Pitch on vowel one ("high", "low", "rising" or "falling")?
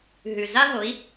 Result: low